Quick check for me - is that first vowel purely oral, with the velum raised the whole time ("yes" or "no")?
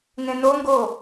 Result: no